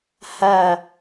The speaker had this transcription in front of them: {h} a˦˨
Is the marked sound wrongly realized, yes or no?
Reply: no